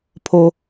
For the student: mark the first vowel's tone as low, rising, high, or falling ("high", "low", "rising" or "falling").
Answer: high